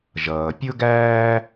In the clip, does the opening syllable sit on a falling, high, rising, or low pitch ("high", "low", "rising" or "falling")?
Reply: low